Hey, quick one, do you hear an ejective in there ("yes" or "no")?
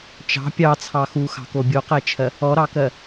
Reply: no